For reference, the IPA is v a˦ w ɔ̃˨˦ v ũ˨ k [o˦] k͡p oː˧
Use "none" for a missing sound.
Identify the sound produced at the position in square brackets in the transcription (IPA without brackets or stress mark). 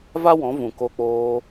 o˧